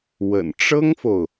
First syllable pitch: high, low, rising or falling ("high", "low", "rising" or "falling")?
low